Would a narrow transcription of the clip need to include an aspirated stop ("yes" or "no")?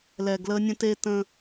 no